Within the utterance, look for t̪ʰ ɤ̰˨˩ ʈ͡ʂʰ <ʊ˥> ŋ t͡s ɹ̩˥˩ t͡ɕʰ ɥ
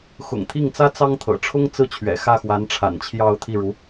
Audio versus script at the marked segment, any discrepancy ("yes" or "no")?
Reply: no